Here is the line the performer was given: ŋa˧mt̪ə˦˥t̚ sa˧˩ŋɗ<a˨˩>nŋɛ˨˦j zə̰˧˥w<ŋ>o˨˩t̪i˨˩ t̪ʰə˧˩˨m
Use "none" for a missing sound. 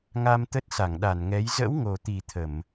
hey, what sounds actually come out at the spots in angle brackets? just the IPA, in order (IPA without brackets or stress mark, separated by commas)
a˧˩, ŋ